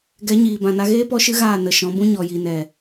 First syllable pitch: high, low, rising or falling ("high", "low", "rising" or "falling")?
rising